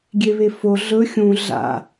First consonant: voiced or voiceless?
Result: voiced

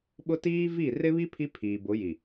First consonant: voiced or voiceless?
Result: voiced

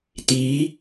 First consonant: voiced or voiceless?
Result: voiceless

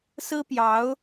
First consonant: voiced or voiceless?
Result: voiceless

